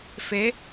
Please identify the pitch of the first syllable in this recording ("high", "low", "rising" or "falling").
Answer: rising